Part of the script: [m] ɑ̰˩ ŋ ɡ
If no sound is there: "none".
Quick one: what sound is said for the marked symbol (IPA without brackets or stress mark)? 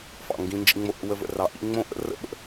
f